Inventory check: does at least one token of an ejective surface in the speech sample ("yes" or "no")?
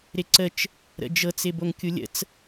no